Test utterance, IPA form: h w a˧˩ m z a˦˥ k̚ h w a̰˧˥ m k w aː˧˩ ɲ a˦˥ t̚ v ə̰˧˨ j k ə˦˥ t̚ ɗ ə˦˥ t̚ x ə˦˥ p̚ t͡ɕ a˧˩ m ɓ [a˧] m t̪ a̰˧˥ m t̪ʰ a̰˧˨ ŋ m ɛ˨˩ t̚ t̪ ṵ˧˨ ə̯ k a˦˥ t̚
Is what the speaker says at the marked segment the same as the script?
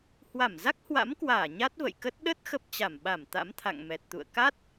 no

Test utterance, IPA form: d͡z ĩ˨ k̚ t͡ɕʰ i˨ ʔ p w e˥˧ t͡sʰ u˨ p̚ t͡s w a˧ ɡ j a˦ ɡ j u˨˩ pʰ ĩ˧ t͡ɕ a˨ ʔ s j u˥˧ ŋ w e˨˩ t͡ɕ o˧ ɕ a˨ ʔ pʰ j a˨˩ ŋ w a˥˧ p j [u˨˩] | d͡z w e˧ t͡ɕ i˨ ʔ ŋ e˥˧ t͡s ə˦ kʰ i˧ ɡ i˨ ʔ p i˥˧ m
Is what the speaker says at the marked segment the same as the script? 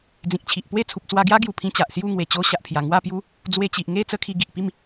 no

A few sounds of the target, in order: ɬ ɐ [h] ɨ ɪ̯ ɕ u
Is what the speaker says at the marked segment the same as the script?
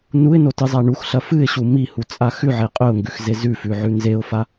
no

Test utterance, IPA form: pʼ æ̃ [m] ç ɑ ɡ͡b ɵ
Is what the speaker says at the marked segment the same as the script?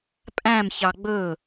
yes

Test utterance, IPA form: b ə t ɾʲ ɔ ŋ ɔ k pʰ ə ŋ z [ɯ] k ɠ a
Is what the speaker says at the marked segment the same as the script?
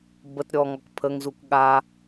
no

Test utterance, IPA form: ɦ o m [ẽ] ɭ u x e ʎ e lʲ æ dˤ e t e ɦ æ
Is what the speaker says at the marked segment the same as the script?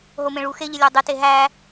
yes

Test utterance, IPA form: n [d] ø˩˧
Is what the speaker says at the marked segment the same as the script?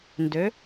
yes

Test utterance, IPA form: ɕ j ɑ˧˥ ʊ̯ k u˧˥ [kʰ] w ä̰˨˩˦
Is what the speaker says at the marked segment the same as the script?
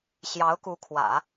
yes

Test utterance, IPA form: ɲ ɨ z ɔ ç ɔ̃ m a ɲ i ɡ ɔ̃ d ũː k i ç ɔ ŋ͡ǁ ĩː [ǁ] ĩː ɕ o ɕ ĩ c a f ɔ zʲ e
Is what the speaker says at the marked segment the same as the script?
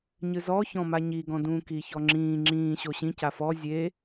no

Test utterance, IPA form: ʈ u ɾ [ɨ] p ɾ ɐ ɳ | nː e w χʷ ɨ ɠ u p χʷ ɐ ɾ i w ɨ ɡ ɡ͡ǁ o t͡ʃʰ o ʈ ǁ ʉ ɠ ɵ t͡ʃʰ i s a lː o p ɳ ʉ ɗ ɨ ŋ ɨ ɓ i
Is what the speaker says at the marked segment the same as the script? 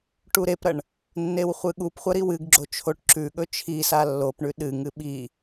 no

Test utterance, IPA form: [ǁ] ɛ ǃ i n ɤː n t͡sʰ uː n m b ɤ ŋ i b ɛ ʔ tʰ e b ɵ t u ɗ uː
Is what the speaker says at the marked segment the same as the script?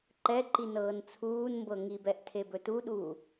no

